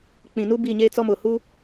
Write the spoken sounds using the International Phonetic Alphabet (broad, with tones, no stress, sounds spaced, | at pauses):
k͡p ĩ˨ n u˦ b i˦˨ ɲ eː˦ t͡s ɔ˦ m ʊ˨ h u˦